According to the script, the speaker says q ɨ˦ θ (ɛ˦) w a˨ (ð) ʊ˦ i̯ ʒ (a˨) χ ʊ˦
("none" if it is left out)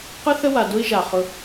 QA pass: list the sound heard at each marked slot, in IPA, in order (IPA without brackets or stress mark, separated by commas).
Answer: ə˦, d, a˨